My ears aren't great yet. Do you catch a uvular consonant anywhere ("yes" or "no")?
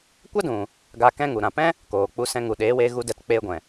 no